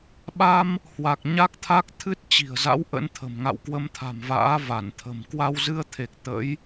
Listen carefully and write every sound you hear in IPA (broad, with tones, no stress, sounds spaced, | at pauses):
ɓ a˧ m | h w a˨˩ k̚ ɲ a˦˥ k̚ t̪ʰ a˦˥ k̚ t̪ʰ ɨ˦˥ t̚ t͡ɕ i̤˨˩ ə̯ z a̰˧˥ w ʔ ə̰˧˥ n t̪ʰ ə̤˨˩ m ŋ a̰˧˨ w k w ə˧ m t̪ʰ a̤˨˩ m v a̰ː˧˥ v a˧˩ n t̪ʰ ə̤˨˩ m k w a˧ w z ɨ˧ ə̯ t̪ʰ e˨˩ k̚ t̪ ə̰˧˥ j